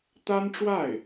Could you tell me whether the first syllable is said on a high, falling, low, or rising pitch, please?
high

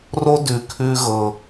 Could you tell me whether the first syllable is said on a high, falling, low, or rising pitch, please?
high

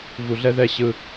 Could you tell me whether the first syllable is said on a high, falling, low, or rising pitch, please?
low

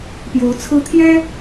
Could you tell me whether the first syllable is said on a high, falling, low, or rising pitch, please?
rising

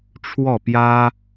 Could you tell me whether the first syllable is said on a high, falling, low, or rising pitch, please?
falling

